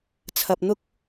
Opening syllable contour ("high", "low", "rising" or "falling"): low